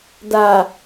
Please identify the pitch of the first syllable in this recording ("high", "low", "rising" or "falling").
low